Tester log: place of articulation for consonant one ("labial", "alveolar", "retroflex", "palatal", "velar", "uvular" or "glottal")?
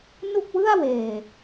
alveolar